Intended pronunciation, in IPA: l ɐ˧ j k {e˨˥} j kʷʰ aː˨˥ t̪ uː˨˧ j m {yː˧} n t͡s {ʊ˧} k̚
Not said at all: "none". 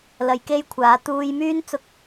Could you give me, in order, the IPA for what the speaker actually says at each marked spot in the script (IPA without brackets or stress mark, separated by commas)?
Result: e˥, yː˥, ʊ˧